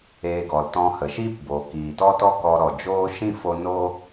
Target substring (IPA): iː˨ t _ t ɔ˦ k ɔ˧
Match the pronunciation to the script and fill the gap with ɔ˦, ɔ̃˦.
ɔ˦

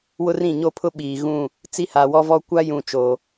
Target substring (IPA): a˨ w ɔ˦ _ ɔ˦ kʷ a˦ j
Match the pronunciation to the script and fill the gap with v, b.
v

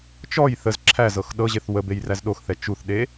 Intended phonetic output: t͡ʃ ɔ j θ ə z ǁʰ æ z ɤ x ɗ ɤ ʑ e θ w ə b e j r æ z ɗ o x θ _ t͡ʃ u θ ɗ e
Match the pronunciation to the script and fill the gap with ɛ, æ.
ɛ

